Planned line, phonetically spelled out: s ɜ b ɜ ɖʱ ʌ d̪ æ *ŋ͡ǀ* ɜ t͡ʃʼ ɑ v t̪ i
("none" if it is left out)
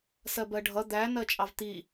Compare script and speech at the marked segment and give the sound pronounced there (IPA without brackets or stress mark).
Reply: n